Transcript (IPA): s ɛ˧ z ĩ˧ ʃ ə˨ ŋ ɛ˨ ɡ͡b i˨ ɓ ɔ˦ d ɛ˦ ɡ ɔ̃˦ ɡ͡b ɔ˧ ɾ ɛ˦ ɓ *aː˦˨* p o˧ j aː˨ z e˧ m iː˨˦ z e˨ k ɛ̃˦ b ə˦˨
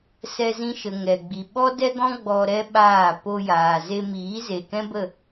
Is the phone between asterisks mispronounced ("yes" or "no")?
no